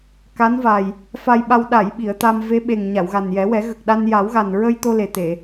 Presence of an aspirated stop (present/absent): absent